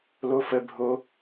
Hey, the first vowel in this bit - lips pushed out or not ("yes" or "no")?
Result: yes